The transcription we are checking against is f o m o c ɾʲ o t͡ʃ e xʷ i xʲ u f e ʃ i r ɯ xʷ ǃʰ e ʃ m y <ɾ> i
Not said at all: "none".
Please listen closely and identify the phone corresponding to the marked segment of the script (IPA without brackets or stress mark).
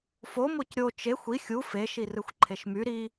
ɾ